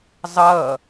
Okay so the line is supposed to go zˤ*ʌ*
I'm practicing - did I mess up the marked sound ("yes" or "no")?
no